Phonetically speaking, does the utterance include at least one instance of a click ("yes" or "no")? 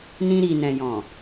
no